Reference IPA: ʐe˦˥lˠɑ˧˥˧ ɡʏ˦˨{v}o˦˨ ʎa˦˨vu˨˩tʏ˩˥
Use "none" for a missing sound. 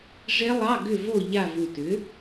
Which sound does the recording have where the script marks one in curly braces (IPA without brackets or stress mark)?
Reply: v